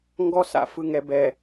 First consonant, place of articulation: velar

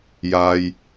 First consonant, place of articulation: palatal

